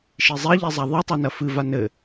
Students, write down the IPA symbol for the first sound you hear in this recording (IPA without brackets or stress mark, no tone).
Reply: ʃ